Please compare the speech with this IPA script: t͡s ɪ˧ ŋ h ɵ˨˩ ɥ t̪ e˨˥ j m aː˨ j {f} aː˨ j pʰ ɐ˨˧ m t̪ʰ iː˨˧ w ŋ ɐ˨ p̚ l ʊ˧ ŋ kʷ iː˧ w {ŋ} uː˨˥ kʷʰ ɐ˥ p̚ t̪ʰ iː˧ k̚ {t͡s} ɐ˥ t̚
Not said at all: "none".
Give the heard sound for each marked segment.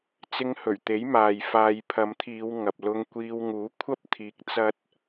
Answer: f, ŋ, t͡s

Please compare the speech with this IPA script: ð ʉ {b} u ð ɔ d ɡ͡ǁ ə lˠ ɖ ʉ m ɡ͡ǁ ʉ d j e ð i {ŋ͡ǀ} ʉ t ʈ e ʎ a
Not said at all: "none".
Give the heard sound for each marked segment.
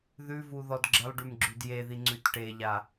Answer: v, ŋ͡ǀ

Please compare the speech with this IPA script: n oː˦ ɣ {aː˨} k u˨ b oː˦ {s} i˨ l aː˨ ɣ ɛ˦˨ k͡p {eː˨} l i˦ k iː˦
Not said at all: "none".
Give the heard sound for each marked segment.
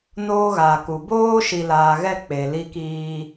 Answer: aː˨, ʃ, e˨

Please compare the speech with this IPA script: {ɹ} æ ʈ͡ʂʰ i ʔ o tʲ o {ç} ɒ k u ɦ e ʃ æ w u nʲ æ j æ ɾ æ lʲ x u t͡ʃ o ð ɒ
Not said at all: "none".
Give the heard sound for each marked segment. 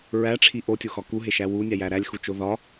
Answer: ɹ, x

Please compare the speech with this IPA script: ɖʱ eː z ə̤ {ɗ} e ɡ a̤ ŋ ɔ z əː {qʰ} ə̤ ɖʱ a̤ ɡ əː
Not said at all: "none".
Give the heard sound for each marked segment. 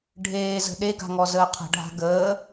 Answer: ɗ, qʰ

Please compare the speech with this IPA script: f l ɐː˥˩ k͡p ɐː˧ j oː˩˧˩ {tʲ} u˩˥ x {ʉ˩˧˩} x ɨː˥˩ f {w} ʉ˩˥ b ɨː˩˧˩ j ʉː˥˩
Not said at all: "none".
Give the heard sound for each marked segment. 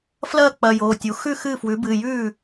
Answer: tʲ, ʉ˥˩, w

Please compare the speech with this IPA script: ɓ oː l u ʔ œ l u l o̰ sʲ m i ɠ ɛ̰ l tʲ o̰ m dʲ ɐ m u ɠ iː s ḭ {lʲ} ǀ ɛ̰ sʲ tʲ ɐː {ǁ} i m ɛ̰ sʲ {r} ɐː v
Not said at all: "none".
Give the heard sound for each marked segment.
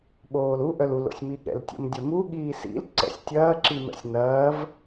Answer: l, ǁ, n

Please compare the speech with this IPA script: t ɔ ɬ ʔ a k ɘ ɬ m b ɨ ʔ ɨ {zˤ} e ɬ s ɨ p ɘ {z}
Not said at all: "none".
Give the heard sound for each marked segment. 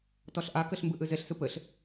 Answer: z, ɬ

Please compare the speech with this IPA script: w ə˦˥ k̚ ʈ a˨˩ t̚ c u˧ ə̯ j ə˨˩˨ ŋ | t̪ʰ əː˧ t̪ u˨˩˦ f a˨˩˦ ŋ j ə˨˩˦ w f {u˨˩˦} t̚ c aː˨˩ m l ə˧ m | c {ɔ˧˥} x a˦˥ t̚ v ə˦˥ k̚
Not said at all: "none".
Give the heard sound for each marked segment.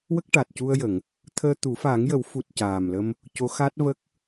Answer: u˨˩, o˧˥

